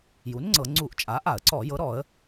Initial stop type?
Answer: click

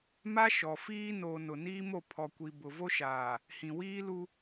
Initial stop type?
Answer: aspirated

